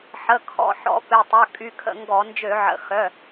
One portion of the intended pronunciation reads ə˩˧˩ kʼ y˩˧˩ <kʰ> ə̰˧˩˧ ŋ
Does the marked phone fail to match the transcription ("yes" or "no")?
no